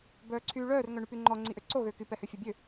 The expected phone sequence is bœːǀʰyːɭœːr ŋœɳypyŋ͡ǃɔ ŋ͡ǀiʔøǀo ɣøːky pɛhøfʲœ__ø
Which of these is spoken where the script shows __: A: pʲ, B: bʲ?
B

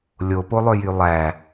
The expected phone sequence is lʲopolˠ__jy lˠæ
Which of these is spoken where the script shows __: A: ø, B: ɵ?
A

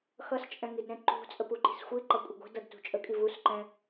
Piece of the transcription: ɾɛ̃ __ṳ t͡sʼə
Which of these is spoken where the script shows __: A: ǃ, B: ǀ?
A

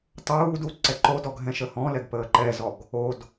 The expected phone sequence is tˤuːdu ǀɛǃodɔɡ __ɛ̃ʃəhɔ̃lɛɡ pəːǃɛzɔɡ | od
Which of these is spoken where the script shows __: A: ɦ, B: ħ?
A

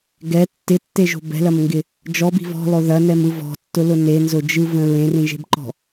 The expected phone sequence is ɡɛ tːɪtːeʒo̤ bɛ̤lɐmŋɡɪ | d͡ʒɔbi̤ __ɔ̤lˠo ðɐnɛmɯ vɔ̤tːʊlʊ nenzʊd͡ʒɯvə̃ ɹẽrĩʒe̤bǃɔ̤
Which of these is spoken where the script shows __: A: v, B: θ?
A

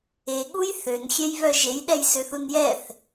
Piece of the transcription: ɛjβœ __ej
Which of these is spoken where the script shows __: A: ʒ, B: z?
A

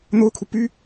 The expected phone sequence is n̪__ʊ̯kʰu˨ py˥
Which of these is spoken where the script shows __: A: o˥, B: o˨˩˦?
A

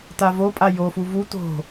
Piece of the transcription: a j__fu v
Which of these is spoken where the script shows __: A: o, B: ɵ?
A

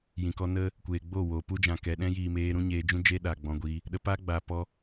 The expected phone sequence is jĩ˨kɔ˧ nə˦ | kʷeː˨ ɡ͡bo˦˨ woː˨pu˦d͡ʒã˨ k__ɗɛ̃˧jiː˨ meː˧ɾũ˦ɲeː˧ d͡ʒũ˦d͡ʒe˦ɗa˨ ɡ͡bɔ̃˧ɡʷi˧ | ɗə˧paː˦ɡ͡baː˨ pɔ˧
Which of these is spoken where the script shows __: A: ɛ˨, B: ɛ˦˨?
A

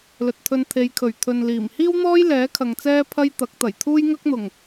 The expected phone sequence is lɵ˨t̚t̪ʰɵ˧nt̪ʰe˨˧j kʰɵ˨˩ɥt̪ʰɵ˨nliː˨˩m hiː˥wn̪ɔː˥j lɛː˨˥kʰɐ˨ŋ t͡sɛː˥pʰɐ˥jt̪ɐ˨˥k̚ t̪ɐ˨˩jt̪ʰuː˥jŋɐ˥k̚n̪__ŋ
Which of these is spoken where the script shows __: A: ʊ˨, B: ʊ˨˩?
B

